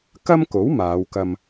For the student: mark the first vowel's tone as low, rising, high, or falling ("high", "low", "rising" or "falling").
high